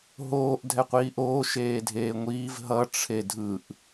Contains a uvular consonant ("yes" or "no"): yes